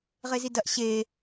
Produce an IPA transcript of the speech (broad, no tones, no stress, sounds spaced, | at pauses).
ʁ e z i d ɐ ʔ ɕ e